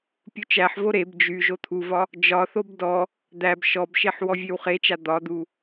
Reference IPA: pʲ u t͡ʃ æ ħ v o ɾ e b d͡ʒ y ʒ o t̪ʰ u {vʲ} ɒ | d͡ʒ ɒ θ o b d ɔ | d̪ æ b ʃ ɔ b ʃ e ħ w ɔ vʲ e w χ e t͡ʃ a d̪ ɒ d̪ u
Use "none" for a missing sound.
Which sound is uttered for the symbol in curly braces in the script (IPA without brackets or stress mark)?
v